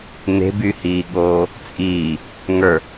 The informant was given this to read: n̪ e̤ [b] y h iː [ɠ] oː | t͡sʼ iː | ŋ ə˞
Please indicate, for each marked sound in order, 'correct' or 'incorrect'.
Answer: correct, correct

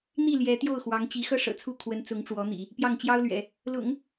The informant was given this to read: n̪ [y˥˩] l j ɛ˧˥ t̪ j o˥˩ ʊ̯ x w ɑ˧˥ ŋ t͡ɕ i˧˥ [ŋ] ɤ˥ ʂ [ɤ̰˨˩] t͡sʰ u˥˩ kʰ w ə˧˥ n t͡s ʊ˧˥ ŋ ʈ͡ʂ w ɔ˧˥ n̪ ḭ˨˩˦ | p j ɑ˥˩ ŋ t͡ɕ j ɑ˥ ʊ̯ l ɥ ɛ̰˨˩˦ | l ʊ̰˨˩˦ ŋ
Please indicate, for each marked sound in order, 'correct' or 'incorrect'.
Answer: incorrect, incorrect, correct

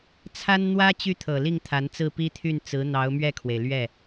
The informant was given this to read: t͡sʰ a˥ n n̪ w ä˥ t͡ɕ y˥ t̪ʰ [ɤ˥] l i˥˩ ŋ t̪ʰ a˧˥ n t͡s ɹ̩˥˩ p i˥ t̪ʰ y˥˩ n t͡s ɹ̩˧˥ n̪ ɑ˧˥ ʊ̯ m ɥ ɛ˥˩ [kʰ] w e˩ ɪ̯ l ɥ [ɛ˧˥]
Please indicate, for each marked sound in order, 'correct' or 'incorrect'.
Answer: incorrect, correct, incorrect

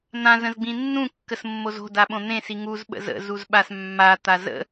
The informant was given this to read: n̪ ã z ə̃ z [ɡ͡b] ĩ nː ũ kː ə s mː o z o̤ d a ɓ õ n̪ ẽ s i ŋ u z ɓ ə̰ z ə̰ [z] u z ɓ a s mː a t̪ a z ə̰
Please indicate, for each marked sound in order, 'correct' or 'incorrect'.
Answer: correct, correct

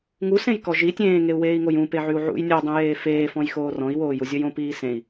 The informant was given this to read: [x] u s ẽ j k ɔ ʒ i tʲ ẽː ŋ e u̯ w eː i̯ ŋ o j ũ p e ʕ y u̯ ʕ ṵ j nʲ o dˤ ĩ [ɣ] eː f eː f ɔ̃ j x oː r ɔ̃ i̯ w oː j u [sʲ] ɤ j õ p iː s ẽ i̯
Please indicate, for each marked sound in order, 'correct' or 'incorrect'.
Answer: incorrect, incorrect, incorrect

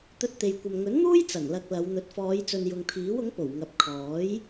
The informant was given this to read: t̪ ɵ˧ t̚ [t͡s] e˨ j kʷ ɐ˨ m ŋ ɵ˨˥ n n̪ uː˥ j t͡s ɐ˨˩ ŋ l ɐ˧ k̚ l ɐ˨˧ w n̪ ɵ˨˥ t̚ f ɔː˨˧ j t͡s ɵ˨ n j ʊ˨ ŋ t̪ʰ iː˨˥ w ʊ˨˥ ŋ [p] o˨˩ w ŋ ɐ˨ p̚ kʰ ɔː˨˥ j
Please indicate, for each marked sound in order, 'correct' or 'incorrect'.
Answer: incorrect, correct

